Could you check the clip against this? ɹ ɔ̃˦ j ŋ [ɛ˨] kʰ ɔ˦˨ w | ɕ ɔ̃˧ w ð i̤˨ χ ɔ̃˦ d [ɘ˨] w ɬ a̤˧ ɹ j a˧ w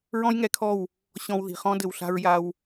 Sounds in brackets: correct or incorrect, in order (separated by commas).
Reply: incorrect, correct